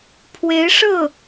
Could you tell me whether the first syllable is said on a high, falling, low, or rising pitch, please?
rising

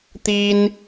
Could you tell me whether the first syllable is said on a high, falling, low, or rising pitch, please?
high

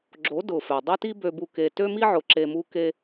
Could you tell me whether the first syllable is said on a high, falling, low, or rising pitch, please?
rising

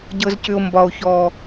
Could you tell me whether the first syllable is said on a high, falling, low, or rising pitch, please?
low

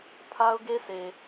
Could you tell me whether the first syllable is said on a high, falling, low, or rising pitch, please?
high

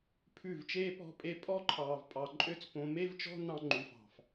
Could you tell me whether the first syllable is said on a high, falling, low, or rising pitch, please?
falling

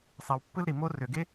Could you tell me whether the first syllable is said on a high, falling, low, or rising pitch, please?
low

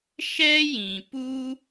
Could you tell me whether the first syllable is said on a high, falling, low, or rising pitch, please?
high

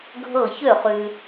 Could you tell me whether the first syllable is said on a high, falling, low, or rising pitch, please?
falling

